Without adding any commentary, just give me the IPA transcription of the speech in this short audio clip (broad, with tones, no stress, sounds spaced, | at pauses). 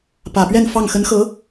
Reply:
p ä˨˩ p ɥ ɛ˥˧ n f ɑ˥˩ ŋ x ə˧˥ n x ɤ˧˥